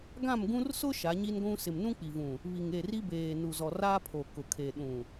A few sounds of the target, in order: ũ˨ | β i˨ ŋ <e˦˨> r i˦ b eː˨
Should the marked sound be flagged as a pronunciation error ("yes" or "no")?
no